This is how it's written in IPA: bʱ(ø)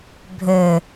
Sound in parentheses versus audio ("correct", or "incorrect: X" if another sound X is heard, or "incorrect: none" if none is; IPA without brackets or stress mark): correct